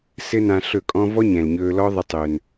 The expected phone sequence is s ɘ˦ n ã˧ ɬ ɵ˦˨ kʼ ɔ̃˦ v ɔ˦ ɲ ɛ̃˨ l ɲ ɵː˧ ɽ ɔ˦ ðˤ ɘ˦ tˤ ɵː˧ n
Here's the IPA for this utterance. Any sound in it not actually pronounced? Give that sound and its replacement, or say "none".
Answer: ɽ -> l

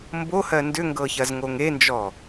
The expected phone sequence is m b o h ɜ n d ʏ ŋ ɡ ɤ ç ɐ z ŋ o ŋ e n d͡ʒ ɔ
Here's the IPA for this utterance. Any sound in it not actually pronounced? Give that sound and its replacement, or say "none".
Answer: none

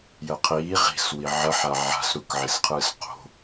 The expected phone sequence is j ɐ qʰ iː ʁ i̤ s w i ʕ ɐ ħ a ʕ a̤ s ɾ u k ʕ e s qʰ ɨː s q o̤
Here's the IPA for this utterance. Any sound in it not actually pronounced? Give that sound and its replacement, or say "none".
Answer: none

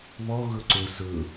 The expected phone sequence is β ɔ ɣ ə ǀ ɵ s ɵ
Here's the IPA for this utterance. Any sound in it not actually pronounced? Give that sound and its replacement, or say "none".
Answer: ə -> ɵ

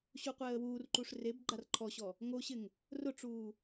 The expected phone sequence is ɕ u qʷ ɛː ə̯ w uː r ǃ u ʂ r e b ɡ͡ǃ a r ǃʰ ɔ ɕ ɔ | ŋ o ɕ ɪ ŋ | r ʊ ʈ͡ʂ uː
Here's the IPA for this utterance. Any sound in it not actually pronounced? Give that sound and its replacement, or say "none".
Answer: none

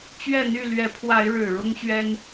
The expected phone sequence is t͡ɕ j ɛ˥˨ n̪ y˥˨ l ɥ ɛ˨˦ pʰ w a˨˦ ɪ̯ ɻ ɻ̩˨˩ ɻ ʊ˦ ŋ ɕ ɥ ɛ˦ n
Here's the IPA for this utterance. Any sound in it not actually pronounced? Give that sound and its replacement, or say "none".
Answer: j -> ɥ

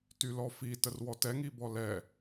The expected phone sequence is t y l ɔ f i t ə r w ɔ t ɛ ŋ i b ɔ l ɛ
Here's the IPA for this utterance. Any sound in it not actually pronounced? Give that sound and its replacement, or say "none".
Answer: none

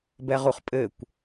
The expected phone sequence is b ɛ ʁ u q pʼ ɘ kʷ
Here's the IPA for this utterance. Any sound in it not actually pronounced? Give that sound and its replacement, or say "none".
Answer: q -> χ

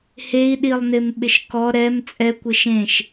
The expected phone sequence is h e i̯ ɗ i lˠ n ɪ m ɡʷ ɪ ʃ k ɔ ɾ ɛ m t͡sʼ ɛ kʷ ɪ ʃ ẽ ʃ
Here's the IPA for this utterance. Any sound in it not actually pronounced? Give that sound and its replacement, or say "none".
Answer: ɡʷ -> ɓ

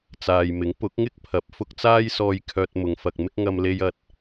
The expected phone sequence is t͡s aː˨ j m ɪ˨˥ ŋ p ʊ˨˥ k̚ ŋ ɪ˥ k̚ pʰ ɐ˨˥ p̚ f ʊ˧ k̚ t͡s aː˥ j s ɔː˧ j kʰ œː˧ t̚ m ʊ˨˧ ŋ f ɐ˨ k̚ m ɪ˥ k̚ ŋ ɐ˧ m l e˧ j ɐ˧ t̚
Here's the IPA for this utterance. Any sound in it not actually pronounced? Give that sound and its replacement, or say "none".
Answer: none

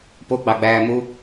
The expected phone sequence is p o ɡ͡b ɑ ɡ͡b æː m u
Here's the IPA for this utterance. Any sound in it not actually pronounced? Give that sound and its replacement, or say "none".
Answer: none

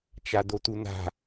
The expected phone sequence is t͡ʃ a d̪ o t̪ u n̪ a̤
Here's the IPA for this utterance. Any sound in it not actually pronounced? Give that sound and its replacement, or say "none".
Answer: none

